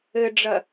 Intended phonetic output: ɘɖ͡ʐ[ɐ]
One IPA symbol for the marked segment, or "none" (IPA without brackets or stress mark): ɐ